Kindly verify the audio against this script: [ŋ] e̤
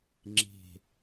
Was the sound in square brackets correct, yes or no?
no